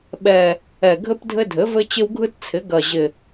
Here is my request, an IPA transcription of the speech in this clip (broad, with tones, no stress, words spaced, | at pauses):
ɓɛ˨˩ | ɛ˨˩ɡʱɘ˦p dʱɘ˦dʱɘ˩˥vɘ˦ t͡ɕɪ˦wɡʱɯ˦tt͡sʰɪ˩˥ ɡɐ˨˩ʑɪ˨˩